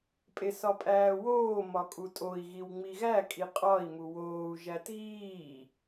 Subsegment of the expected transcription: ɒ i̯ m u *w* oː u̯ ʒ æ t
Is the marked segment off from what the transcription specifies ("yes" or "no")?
no